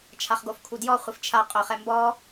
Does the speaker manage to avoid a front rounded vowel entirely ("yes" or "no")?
yes